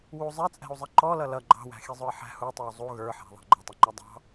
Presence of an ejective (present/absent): present